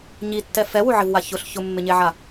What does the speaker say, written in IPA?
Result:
ɲ i tː ɛ f ɛ w u ʕ ɪ v w a ç ʊ ɬ ç ʊ mː ɪ ɲ e ʕ a

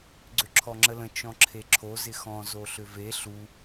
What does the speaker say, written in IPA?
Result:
ɡ͡ǀ ʏ ǁʰ ɔ ŋ͡ǁ ə l ə̃ t͡ʃ ɔ̃ ǁʰ e ǁʰ o z ɪ x ɔ̃ z o ɬ ʏ v e ɬ u

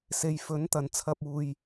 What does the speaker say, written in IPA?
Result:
s e˨˧ j f ɵ˨˥ n t̪ ɐ˨ n t͡sʰ ɐ˧ p̚ uː˨ j

